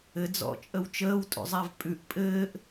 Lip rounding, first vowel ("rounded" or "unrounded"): unrounded